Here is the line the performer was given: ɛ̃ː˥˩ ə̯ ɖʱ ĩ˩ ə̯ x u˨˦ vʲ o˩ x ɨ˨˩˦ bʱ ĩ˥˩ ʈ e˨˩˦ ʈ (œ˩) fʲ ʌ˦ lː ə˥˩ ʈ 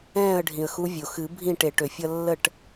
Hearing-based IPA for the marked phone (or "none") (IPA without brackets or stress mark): ø˩